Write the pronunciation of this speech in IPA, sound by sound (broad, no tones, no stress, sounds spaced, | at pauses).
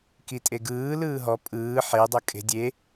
k i tʼ e ɡ ɯː l ɯː ɦ ɔ pʼ ɯː ħ e dˤ ɤ kʼ e̤ dʲ e